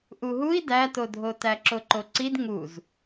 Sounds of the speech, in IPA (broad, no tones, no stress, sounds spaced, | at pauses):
ʔ u ɦ u i̯ d æ t o dʱ o t æ ǁ o ǃ o ǀ i d ŋ u z